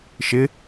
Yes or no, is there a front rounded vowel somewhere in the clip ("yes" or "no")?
no